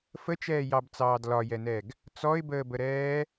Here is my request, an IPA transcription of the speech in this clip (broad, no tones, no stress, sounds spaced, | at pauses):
f ə t͡ʃ ɛː j ɑ b t͡s ɑː d l ɒ j ɛ n ɛ ɡ | t͡s ɔ ɪ̯ b əː b ə ɾ ɛː